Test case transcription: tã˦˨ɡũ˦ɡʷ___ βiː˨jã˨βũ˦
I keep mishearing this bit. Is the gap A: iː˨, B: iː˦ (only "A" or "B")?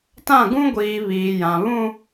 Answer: A